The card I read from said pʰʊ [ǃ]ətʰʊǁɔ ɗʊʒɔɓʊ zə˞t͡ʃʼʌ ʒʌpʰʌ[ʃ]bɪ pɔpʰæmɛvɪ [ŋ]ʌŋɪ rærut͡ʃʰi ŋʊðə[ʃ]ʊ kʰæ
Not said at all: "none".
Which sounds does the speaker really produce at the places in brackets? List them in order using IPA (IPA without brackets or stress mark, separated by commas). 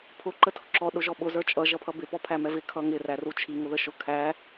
ǃ, none, kʰ, ʃ